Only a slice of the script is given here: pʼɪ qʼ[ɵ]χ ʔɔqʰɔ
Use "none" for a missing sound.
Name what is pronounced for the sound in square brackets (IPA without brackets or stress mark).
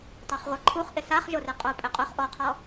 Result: ʊ